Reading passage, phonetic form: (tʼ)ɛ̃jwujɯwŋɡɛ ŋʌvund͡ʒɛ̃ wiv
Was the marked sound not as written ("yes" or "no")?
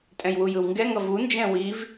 no